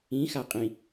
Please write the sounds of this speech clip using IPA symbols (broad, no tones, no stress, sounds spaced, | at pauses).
ĩ x a qʼ ĩ